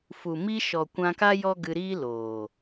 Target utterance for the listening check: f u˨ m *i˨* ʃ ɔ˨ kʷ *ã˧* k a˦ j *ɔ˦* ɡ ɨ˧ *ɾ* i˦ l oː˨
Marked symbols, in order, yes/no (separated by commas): no, yes, yes, yes